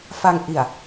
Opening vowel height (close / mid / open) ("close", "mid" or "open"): open